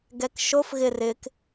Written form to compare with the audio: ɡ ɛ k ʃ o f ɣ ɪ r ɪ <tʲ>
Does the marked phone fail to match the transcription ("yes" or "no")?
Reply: yes